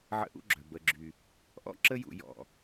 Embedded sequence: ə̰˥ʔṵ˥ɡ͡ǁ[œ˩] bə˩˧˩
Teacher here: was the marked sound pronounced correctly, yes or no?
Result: yes